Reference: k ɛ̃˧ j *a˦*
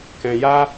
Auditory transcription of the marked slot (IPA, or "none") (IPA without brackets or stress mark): a˦